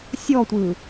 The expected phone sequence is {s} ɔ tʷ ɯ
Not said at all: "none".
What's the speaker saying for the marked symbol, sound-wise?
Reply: sʲ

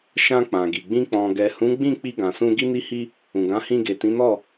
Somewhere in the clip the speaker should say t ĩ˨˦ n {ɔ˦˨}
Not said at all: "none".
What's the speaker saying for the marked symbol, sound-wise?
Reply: ɔ˦˨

